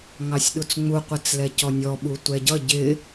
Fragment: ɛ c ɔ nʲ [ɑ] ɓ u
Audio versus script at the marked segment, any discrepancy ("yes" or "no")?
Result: yes